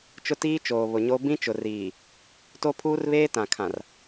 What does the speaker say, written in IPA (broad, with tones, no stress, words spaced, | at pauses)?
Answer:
t͡ʃʊ˦tiː˦t͡ʃoː˨ βʊ˨ɲo˦ bĩ˦t͡ʃʊ˨ riː˨ | to˦pʰuː˦rβeː˦ tã˨kʰã˨r